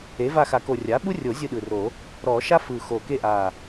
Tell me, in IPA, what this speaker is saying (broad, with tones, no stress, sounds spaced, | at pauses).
e˩˥ v a˦˨ x a˨˩˦ k o˨˩ rʲ a˩˥ ɓ u˥ rʲ o˨˩˦ zʲ ɯ˦˨ ɗ ɯ˨˩ r o˨˩˦ | ɾ ɔ˨˩˦ ʃ a˥ f ɯ˨˩ x o˨˩ k e˦˨ ʔ a˨˩